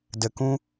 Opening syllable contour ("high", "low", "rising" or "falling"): low